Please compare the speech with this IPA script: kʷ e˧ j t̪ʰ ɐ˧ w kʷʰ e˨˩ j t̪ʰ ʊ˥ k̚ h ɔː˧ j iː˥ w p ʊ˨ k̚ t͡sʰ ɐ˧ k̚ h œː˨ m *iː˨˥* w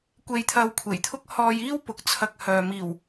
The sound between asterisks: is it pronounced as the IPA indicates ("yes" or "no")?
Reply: no